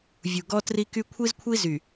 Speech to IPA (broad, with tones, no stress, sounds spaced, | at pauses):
vʲ u˨ ɡ ɔ˦ t r i˦ k y˦ kʷʰ i˦ z kʷʰ i˦ z y˨